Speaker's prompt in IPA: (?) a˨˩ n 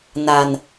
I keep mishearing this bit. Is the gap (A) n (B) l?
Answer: A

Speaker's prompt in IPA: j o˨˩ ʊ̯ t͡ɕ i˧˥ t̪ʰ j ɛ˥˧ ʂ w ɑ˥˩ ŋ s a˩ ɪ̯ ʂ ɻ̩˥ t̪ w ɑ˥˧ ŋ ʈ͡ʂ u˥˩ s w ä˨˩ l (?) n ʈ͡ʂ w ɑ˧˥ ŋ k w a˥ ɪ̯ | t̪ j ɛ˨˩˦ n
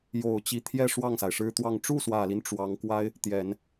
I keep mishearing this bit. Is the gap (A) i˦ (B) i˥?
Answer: A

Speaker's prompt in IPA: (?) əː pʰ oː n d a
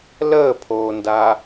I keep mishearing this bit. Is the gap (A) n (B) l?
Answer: B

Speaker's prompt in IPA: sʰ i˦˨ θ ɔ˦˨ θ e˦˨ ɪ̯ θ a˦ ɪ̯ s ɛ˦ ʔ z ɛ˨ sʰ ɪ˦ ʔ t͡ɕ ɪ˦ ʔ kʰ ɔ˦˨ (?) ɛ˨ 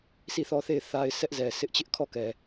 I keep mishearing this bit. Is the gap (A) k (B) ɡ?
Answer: A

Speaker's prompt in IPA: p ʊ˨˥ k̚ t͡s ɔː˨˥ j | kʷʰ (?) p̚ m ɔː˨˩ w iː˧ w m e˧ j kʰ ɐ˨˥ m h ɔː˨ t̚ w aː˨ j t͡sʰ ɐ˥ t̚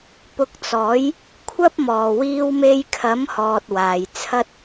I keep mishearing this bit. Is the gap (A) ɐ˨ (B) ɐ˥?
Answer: B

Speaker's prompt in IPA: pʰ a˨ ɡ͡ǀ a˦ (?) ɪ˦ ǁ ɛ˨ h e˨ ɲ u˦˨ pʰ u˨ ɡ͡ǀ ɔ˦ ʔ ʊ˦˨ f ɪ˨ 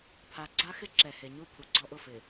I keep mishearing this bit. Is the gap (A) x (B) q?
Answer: A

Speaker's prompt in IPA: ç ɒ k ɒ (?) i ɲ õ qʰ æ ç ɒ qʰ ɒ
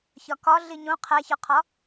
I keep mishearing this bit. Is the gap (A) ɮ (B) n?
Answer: A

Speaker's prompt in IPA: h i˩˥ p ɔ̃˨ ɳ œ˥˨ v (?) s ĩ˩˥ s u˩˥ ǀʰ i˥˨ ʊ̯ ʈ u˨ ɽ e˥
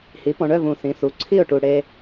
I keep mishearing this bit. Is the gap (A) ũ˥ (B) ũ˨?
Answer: B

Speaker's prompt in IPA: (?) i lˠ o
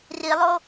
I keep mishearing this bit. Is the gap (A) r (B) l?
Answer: A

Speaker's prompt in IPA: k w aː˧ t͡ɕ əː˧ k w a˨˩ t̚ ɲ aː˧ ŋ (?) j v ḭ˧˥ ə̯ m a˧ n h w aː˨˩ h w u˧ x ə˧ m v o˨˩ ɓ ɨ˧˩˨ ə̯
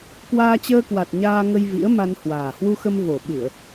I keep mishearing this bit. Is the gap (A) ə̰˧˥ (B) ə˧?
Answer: B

